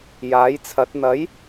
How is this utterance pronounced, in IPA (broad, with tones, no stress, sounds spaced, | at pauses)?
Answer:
j aː˨˥ j t͡sʰ ɐ˨˥ t̚ n̪ ɐ˨˥ j